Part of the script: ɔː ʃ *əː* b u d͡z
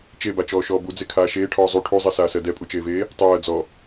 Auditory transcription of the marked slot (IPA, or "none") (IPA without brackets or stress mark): ɔː